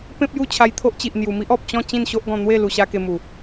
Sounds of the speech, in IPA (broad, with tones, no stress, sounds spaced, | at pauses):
p ẽ˦ p̚ j u˥˧ t͡ɕʰ a˧ j t̪ʰ o˦ ʔ t͡ɕ i˨ ʔ n̪ j u˨˩ m i˦ ʔ ɔ˨ p̚ t͡ɕ ɔ̃˥˧ t͡ɕ ĩ˥˧ n ɕ o˦ ʔ ɡ ɔ̃˧ n̪ w e˥˧ l u˧ ɕ a˦ k e˧ m u˨˩